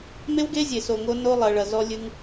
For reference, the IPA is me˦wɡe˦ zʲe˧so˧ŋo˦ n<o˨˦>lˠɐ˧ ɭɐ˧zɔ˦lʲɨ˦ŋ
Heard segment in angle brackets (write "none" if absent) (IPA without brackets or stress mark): o˦